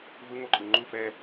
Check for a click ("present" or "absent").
present